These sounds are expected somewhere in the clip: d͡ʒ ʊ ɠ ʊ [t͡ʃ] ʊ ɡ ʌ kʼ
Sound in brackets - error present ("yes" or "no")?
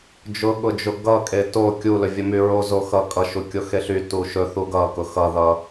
yes